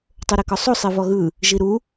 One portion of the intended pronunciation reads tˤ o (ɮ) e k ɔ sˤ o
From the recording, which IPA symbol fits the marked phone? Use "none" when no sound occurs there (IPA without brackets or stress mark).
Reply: ɾ